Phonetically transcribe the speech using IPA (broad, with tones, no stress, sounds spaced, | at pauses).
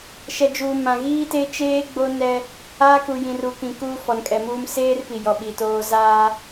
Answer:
ʃ ɛ˨ d͡ʒ uː˨ m ã˨ ɣ iː˦ t e˦ t͡ʃ eː˦ ɡ͡b o˦ n ɛ˦ | aː˦ k u˨ j ĩ˨ r u˨ k ĩ˨ k uː˦ f ɔ˨ n kʼ ɛ˨ m uː˦ m s eː˦ r p i˨ j ɔ˨ ɓ i˨ t oː˦ z aː˦